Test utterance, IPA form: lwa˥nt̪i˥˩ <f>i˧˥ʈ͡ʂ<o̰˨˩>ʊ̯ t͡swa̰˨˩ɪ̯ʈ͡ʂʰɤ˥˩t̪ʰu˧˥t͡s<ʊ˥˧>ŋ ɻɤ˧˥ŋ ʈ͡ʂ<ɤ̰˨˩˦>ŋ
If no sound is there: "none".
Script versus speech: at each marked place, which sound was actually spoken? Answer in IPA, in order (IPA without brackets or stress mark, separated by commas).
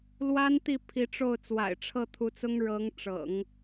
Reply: pʰ, o˥˩, ʊ˥, ɤ̰˨˩˦